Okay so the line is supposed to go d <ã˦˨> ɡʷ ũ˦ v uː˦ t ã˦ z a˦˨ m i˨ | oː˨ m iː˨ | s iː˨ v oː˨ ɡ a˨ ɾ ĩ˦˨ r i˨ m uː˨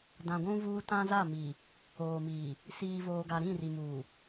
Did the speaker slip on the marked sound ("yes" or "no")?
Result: yes